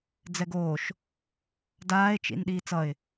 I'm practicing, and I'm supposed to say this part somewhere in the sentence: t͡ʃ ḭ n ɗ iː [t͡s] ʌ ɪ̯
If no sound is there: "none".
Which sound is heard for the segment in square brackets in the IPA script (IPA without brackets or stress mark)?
t͡s